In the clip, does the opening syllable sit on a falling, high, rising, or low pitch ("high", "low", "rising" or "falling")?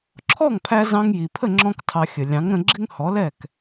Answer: falling